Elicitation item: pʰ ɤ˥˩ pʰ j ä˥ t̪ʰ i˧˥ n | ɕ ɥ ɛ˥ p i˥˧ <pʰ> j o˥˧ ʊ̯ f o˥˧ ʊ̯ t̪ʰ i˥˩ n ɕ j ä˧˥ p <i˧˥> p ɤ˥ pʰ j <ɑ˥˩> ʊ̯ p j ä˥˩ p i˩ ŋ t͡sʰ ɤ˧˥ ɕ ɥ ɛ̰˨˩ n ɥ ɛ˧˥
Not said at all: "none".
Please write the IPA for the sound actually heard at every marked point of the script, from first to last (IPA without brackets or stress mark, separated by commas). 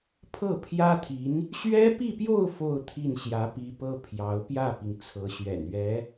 p, i˧˥, ɑ˧˥